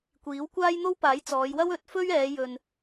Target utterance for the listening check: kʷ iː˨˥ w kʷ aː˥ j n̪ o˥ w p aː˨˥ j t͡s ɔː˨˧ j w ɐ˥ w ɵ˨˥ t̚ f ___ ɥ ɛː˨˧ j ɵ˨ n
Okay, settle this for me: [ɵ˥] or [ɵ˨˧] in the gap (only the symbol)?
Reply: ɵ˥